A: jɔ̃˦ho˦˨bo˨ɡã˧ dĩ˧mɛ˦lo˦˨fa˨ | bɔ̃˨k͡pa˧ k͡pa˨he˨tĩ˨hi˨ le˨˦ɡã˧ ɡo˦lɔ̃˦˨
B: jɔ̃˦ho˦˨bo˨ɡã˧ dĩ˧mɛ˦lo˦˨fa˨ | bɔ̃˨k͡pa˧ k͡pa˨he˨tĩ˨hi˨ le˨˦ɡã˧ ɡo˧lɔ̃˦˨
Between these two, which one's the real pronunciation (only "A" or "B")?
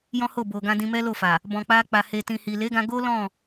A